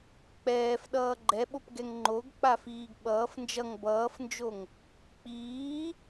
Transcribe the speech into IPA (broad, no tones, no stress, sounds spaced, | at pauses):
k͡p ɛː f ɗ ʌː ɡ͡ǃ ɛ ɓ o p ɡ ɛ ŋ ŋ͡ǃ o ɡ k͡p a f iː ɡ ɓ ʌː f n d͡ʒ ʌ ŋ b ʌː f n d͡ʒ o ŋ | k͡p iː